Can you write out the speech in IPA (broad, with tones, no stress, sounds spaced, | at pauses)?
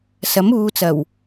s ɐ˨˥ m uː˨˧ t͡s ɐ˨˩ w